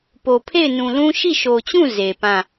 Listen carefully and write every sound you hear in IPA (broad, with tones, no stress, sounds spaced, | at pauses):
p o˨ pʰ e˦˨ ɪ̯ n ũ˨ l ũ˦ ʃ i˦˨ ʃ o˨ t͡ɕ ũ˦˨ z e˨ p ã˦˨